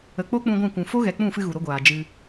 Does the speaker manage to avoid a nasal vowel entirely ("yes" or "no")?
no